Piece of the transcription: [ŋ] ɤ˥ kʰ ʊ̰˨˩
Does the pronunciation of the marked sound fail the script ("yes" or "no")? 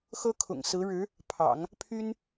yes